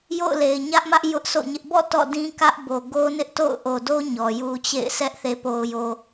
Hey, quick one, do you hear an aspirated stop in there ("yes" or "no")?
no